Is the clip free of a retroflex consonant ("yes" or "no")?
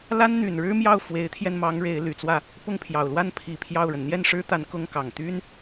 no